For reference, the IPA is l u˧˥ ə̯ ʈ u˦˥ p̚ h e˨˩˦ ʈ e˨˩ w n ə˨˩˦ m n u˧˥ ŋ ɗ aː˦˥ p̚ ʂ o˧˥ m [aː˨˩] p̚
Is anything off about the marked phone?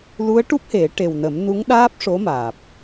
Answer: no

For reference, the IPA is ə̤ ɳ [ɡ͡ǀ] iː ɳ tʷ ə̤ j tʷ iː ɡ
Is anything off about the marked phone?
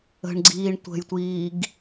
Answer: no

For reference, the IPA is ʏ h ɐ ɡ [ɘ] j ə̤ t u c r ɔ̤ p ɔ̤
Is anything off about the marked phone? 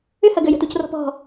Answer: no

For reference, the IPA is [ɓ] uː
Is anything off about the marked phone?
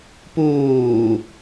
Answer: yes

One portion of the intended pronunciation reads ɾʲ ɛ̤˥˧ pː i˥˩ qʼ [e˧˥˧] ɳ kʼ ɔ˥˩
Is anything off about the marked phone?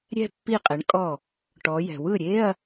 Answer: yes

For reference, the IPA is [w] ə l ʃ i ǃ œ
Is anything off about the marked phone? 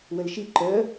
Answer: no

